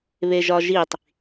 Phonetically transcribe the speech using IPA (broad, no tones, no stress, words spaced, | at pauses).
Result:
βeʒɒʒitˤ